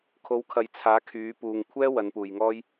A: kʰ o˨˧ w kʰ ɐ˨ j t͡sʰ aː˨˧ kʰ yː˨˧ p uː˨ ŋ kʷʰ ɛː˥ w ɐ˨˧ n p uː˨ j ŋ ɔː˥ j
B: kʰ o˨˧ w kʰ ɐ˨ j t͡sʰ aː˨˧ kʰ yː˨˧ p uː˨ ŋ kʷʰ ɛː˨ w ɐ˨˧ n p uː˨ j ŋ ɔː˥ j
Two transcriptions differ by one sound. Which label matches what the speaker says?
A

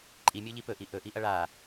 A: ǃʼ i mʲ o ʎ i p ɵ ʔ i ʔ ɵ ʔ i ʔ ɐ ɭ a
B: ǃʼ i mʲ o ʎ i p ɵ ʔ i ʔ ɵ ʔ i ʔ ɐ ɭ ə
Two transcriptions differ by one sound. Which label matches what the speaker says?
A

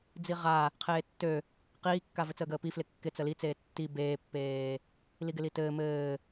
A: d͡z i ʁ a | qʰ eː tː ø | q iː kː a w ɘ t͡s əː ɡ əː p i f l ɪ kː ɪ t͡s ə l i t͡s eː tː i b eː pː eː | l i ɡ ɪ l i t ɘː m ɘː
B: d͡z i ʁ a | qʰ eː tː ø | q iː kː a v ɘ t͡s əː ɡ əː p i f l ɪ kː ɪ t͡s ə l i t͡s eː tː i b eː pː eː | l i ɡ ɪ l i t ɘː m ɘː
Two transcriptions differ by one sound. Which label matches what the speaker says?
B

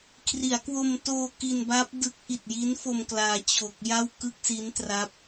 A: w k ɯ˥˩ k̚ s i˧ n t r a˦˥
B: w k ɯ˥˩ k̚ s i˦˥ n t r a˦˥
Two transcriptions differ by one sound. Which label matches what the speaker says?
B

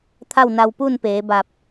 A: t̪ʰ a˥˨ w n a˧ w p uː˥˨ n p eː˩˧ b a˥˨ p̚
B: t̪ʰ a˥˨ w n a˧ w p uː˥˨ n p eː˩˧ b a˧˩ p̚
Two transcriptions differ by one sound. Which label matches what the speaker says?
B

